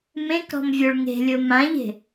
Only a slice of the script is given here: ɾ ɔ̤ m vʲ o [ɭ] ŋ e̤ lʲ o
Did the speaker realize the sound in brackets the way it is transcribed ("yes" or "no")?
yes